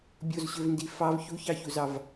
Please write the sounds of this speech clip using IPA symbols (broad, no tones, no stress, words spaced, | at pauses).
bʲozɕøvndi fɑv çuçɑçuzɑv